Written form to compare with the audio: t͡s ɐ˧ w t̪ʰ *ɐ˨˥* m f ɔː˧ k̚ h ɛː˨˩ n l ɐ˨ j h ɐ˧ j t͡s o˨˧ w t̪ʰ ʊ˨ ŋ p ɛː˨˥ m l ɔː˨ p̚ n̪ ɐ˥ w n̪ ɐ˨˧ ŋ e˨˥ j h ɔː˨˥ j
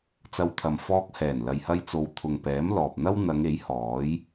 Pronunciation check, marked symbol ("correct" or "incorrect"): incorrect